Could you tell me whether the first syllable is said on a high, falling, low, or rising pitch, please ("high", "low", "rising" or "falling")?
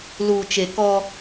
low